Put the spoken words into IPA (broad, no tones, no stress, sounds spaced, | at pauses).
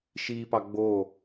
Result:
ʃ iː p ɑ ɡ͡b oː